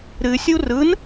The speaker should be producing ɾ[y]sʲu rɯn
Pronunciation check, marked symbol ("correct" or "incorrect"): incorrect